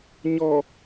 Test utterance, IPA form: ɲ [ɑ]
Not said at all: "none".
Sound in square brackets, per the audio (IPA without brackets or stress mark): ɔ